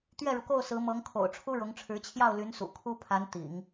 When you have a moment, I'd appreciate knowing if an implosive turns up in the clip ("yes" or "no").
no